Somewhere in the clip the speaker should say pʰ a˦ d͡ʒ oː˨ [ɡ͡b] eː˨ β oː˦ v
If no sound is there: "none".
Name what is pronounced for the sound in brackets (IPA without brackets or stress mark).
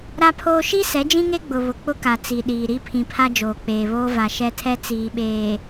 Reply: k͡p